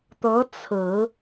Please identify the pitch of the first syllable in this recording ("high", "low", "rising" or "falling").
rising